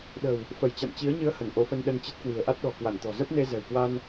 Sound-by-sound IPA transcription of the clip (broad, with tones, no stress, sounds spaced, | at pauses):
ɗ ə̤˨˩ w | f ə˧˩ j t͡ɕ a̰˧˨ m t͡ɕ i˨˦ ə̯ ɲ ɨ˧ ə̯ h ə˧˩ n ʔ o˨˦ f ə˧ n ɗ ə˧ n t͡ɕ ə˦˥ t̚ k w i̤˨˩ ə̯ ʔ a˦˥ t̚ ɗ ɔ̤˨˩ k w a˧˩ n t̪ ɔ̤˨˩ z ə˦˥ p̚ n e˧ z ɛ̤˨˩ w k w a˧ n